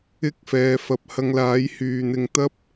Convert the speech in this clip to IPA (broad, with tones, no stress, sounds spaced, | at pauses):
ɪ˥ k̚ f ɛː˨˧ f ɐ˨ p̚ h ɐ˧ ŋ l aː˨˥ j h yː˨ n̪ ɪ˧ ŋ t̪ ɐ˥ p̚